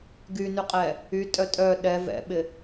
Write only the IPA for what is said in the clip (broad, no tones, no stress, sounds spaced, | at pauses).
ɡ y n y qʼ ɛ | y tʼ œ tʼ œ ɗ ɛ v ɛ̰ ɓ ɪ